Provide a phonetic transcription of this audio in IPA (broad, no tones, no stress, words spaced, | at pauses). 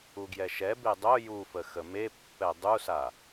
uɡjɛʃɛbe dˤo jufə xəmepːɛ dˤusa